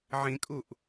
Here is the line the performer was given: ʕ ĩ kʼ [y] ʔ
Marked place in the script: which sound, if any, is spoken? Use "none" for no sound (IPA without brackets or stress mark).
u